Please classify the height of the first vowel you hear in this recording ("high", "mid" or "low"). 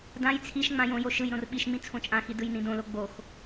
low